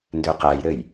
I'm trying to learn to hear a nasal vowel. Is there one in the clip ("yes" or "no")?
no